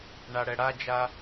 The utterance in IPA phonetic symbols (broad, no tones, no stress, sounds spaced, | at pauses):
ɳ a ɽ ɛ ɽ a d͡ʒ a